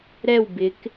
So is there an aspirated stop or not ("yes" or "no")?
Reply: no